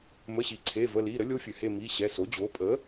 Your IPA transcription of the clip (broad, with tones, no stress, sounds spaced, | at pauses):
m ə˩˧˩ ɕ i˩ ǀʰ e˩˧˩ v ə˩˧˩ l i˩˧˩ ɾ ə˩˥ lʲ o˧˥ fʲ ø˩ h e˦˨ m i˩˧˩ ɕ ɛ˩˧˩ s o˩˥ d͡ʑ o˩˥ pʼ ə˩˥